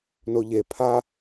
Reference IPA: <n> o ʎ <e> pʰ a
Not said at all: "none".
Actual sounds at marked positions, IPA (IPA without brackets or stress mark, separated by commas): n, e